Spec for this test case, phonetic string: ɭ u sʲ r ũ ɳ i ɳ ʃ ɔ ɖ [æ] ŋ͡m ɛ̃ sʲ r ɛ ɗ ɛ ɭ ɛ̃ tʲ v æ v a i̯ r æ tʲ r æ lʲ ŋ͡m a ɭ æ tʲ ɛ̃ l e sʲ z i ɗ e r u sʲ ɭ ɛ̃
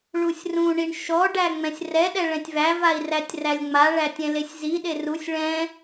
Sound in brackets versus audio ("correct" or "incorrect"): correct